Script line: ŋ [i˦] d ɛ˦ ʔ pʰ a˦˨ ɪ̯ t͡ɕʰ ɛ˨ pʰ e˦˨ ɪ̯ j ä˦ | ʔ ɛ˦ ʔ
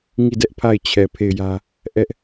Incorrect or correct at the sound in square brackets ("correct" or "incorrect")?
incorrect